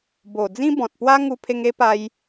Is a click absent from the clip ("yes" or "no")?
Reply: yes